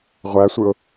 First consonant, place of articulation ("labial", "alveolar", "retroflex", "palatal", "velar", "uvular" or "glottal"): uvular